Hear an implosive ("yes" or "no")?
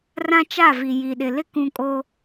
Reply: yes